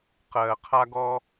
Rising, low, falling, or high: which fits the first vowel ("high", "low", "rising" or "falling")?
low